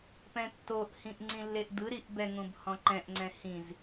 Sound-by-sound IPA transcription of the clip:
p ɛ̃ tː o ʔ h ĩ ʔ ŋ͡ǀ ĩ lː e ʔ d̪ ɯ ɾ i ʔ b ɛ ŋ ũ b h ɔ̃ ǃ ɛ̃ ʔ ŋ͡ǀ ɛ̃ h ĩ z

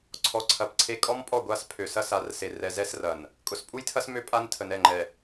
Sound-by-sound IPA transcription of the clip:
ǀʰ ɔ˨ ǀʰ ɐ˨ p ǀʰ e˦ kʼ ɔ˦ m pʼ ɔ˦˨ ɡʷ a˦˨ s pʰ ø˨ s ɐ˦ s a˨˦ r s e˨ r ɛ˨ z ɛ˦ s r ɐ˨ n | kʼ ʊ˨ s pʼ u˦ j tʰ ɐ˦ s m ø˦ pʼ a˦ n tʰ ə˨ n ɛ˦˨ ŋ͡ǃ ɛ˨

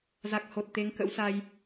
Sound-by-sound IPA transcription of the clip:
z a˨˩ k̚ h o˨˩ t̚ t̪ e˨˦ ŋ k ə̰˧˥ w s a˧ j

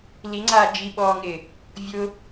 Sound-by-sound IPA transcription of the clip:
l i ŋ͡ǀ aː d͡ʒ i ɓ ɔː ŋ ɪː | vʲ ʊ

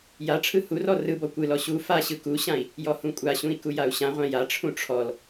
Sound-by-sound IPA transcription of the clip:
j a ʈ͡ʂʰ ɯ h u r ɔ r ɯ b ɔ kʷ ɯ l ɔ ɕ u f a ɕ ɯ k u ɕ ã i̯ | j ɔ h ũ kʷʼ a ɕ ũ i̯ k u j a u̯ ɕ ã ʁʷ ã j a ʈ͡ʂʰ ũ ʈ͡ʂʰ ɔ l

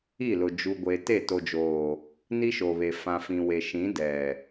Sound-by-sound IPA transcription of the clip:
i˦˨ l ʊ˨ d͡ʒ u˨ ɡʷ e˨ t e˦˨ t o˨ d͡ʒ oː˨ | n i˦ ʃ o˨ β e˨ f ã˨ f ĩ˨ w e˨ ʃ ĩ˨˦ d ɛ˨

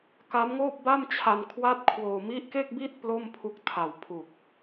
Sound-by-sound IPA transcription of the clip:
k a˦˥ m ŋ oː˥˩ p̚ b a˥˩ m t͡ɕʰ a˧ n kʰ w a˥˩ t̚ kʰ w oː˧ m i˦˥ ʔ k e˥˩ k̚ b i˥˩ t̚ p l o˥˩ m pʰ u˦˥ k̚ tʰ a˨˩ w pʰ u˨˩ k̚

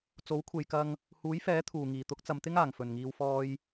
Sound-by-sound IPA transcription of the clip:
t͡s o˨˥ w kʷʰ e˨ j k ɐ˧ ŋ | h uː˨˥ j f ɛː˨˥ t̪ʰ uː˨˩ ŋ iː˨˩ t̪ ʊ˨˥ k̚ t͡s ɐ˨ m t̪ ɪ˥ ŋ aː˨˩ ŋ f ɵ˨˩ n ŋ iː˨ w f ɔː˧ j

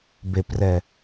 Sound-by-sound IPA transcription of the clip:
b e p r ɛ

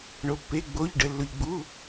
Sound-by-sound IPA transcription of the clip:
ɳ o˩ pː e˩˧˩ ɡ͡b o˩˧˩ ʎ ɖ ə˩ lː ʊ˩ ʎ ɡ͡b u˩˧˩

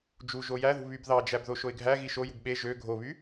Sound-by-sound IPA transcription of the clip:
d͡ʒ u ʒ o j æ ð ṳ β y b ð ɑ d͡ʒ æ b ð o ʃ o ɪ̯ ɡʱ æ ɣ i ʃ o j ṳ b ɓ e ʒ ø ɡʱ o β y

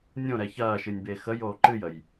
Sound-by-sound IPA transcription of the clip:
nʲ õ ɾ ɛ ç ɐː ʃ ɨ nʲ b e x ə j oː ǃ ɨ j ə j

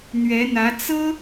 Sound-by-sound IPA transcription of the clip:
n̪ ɥ ɛ˧˥ n̪ ä˧˥ t͡s ɤ˥

